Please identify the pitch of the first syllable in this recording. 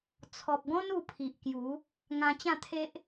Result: low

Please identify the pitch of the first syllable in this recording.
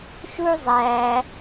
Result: high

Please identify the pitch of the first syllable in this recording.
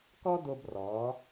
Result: high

